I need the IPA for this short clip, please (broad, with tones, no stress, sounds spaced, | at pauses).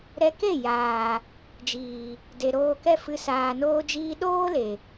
ɾ ɛ˧ k e˦˨ j aː˨ | d͡ʒ iː˨ | d e˨ ɾ oː˧ k ɛ˦ f ɨ˧ s aː˨ n oː˧ d͡ʒ iː˧ ɗ oː˦ l e˨